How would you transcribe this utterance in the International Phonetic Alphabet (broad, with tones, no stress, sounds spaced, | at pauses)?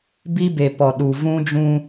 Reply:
b i˦ b e˨ p ɔ˨ ɗ u˨ v ũ˦ d͡ʒ ũ˦